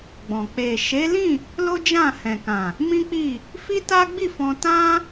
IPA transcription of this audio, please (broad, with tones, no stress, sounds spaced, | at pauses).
ɡ͡b ɔ̃˨ k͡p e˨ ʃ e˨˦ l ĩ˦˨ | l o˦ d͡ʒ ã˦˨ h ɛ̃˨ k ã˨ | m ĩ˦ k͡p i˦˨ | f i˦ t a˦ ɡ͡b i˦˨ f ɔ̃˧ t ã˦